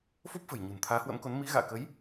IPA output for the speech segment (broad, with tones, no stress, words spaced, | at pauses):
fo˦˥p̚fə̤˨˩j ɲṳ˨˩nt̪ʰaː˨˦hwə̰˧˥mko˨˦n mi˨˦ɣa̰ː˧˨kə˨˦j